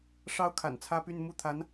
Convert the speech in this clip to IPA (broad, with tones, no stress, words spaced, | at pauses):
ʂɑ˥ʊ̯kʰa̰˨˩n t͡sʰä˥py˥˧n mu˥˩ t̪ʰa˧˥n